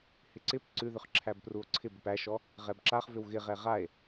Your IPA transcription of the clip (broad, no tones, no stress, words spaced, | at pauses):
hɪǀɪp ǀʉðʏχ ǁʰæbpruo̯ǀʰɪb ʏpæʃɔ | ʁɛbǁaχvʏw ɣɪʁɛ ʁae̯